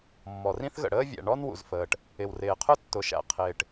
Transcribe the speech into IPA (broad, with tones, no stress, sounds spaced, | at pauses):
mː ɔ˩ r ĩ˥ θ ɣ ə̰˩ ɽ əː˥ vʲ æ̰˩ ɳ ɔ˥ n w ṵ˩ z f əː˩ ʈ | ɪ˩ w r ɪː˩ qʰ ʊ˥ tː ʊ˩ ʃ æ̰˩ qʰ ɪː˩ ʈ